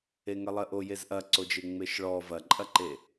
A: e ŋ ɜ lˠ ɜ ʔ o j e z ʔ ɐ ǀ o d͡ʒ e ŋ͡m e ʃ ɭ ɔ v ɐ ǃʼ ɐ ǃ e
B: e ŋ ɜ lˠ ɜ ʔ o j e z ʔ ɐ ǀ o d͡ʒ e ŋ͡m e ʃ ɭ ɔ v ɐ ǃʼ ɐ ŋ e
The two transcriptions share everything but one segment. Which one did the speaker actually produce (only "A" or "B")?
A